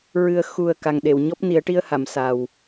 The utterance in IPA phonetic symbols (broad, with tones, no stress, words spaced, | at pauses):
ɹɨ˨˩ə̯ xu˨˩ə̯ ka˨˩ŋɗe˨˩˨wɲɔ˦˥p̚ ni˨˩˦ə̯ʈi˧ə̯ha˨˩˨m sa˨˩w